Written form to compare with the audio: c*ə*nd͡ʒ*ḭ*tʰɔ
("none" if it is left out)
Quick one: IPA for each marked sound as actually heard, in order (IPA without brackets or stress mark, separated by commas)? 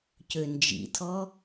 ø, ḭ